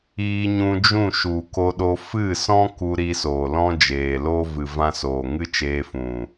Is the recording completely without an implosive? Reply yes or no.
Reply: no